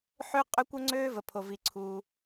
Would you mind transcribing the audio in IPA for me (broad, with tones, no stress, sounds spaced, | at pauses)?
ħ ø˥ qʼ ø˥ kʷ ɤ˥ ŋ͡ǀ øː˥ v ə˩ pʰ o˩ v i˩ ǀʰ uː˩